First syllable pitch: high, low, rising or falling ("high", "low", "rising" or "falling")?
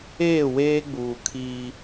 falling